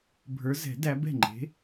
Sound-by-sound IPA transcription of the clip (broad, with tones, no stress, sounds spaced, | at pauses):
bʱ ə˞˨˦ z ɛ̤˨˩˦ d æ˨˦ b ɛ̤˥˩ ŋ͡ǃ e̤˨˦